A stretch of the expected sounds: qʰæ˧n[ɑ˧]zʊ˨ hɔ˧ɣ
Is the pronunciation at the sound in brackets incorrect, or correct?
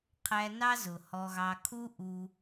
incorrect